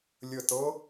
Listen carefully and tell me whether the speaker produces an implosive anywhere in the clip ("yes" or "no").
no